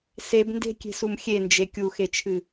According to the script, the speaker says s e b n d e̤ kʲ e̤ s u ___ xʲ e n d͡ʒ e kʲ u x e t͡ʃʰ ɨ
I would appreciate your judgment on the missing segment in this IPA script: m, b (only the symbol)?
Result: m